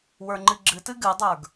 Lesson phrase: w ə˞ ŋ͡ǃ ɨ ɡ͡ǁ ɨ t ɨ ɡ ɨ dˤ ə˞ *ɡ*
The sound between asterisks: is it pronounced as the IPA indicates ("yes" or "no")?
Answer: yes